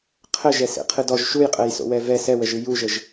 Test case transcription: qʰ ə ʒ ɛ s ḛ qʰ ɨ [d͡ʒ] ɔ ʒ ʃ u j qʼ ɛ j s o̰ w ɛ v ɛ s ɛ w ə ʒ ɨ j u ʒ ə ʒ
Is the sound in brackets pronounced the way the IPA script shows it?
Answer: no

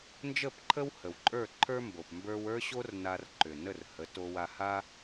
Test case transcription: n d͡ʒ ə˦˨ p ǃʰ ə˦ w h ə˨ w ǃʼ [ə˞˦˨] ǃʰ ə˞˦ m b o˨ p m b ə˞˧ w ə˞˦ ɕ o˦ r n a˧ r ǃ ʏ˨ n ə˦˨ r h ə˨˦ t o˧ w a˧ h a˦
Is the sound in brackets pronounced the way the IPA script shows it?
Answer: yes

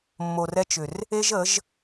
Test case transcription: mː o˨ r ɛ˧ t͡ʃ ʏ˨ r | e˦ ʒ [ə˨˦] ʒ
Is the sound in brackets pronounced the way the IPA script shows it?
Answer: yes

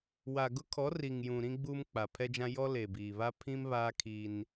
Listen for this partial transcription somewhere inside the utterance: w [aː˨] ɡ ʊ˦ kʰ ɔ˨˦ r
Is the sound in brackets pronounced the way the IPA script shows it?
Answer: no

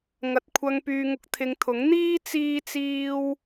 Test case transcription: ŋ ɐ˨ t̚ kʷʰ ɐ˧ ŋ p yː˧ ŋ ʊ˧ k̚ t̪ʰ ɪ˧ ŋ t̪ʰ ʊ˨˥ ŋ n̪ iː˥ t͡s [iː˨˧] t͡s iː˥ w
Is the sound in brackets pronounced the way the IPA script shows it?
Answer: no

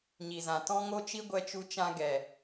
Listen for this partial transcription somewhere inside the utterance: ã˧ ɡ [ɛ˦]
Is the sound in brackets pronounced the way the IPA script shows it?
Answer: no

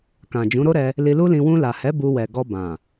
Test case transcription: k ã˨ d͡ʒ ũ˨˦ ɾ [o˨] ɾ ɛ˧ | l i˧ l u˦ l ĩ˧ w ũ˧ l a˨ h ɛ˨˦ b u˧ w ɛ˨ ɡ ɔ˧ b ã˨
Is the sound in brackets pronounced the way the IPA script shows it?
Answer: no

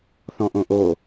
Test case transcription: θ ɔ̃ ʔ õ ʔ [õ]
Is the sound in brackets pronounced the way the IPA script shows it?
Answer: no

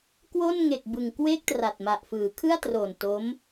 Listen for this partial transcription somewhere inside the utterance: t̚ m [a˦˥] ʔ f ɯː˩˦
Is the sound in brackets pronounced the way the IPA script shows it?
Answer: no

